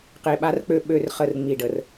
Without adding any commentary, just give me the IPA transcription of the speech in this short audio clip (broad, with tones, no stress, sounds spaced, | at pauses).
q e˨ ɓ a˦ r k͡p ø˦ ɓ ø˦˨ r χ ə˦˨ r ŋ͡m i˨ ɖ ə˨ r